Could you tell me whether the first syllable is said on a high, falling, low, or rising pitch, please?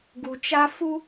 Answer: low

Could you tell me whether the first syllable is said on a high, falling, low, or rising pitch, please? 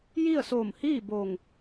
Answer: falling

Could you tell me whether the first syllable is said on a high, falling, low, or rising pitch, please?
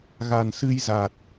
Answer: low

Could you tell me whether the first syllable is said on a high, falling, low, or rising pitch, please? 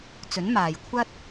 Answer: rising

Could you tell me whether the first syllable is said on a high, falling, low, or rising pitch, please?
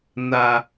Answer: low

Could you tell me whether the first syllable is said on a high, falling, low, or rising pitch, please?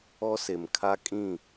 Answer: high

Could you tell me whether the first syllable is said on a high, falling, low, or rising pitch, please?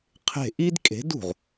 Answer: falling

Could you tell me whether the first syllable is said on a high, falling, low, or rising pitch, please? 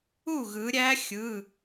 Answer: falling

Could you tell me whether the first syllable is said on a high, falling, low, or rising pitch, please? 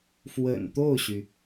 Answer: low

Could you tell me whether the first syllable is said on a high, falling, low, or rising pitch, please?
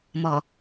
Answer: low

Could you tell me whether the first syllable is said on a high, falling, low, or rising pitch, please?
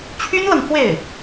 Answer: high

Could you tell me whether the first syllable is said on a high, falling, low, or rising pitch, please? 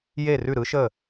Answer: falling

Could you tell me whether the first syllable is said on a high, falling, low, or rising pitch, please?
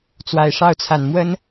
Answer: low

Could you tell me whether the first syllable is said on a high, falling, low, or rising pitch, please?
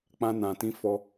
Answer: high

